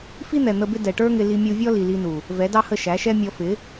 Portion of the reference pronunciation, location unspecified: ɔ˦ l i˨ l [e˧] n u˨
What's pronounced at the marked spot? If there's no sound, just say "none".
i˧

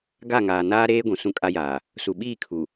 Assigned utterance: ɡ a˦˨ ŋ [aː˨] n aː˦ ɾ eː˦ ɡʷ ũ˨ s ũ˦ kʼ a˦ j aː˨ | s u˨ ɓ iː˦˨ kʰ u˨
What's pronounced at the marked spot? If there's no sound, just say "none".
aː˨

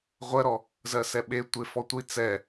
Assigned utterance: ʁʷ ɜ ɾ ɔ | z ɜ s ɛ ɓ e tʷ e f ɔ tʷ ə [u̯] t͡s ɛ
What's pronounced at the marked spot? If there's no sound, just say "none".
i̯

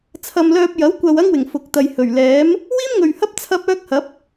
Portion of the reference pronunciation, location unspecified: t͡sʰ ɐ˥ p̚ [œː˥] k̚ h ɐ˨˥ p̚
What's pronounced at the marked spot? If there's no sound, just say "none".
œː˥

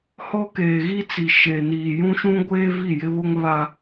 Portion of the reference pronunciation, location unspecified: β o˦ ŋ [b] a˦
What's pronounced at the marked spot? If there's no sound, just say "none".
β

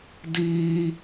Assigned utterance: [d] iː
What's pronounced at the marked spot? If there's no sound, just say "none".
d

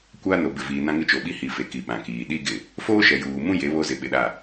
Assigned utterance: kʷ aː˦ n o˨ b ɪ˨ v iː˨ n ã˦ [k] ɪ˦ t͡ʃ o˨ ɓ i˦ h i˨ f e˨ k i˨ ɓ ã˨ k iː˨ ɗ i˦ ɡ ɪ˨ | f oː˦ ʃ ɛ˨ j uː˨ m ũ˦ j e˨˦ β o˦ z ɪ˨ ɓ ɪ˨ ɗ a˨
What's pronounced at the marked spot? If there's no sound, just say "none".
ŋ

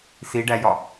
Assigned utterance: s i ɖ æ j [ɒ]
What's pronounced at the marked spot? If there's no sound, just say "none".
ɒ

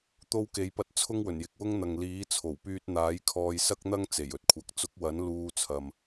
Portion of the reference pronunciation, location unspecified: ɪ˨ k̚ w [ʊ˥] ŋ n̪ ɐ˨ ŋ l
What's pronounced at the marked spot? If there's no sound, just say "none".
ʊ˥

